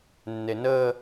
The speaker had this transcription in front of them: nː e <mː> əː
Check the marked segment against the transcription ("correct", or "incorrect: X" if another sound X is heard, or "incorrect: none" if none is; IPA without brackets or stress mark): incorrect: n